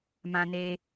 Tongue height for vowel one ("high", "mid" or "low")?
low